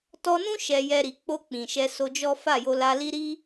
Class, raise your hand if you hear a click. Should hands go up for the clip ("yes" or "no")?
no